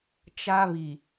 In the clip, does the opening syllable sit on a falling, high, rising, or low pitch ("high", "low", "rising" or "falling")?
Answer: high